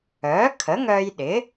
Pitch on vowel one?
rising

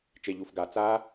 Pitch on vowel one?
low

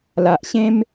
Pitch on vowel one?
low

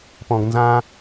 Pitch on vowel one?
low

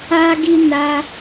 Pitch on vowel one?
high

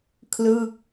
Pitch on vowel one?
falling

